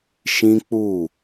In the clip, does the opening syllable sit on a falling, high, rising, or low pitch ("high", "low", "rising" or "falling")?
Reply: high